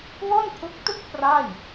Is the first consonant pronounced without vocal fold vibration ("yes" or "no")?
no